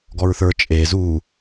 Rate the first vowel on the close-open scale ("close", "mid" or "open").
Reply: mid